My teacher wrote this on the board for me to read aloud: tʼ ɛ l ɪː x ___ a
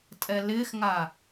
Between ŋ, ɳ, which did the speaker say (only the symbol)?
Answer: ŋ